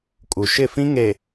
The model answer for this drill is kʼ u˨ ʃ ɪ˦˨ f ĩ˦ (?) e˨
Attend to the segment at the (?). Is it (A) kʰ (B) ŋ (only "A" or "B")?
B